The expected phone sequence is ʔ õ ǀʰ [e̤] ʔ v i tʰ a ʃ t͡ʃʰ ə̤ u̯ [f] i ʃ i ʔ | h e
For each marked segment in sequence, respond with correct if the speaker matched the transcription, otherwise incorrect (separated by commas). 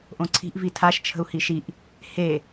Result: incorrect, incorrect